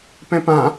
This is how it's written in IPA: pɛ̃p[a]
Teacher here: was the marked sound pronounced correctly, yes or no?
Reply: no